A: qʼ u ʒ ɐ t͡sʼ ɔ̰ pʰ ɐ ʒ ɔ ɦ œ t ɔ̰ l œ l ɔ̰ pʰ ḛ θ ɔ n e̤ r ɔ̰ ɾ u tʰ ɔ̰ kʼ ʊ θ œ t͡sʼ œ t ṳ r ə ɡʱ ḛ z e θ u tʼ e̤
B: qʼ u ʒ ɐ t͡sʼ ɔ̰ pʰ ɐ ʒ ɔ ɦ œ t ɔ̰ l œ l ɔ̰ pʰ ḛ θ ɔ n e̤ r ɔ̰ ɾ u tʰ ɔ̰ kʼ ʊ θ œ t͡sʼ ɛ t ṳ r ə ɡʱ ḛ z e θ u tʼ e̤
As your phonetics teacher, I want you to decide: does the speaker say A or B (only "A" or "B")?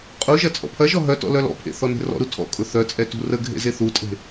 B